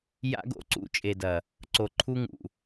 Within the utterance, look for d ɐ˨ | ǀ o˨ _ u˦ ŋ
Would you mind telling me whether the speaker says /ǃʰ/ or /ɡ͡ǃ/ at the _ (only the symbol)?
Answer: ǃʰ